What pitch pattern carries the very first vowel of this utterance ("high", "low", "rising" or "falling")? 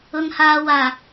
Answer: high